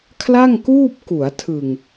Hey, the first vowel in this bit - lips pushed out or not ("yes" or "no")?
no